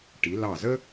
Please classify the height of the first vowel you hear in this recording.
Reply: high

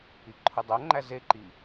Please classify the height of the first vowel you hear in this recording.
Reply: high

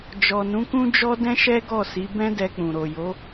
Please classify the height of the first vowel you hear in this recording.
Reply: mid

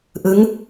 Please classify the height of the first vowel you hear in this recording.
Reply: high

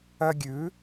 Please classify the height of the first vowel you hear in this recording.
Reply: mid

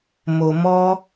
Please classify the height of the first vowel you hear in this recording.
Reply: mid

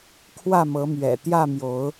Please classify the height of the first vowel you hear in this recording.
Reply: low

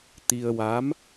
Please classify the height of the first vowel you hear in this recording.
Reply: high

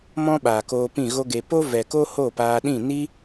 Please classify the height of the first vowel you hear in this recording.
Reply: mid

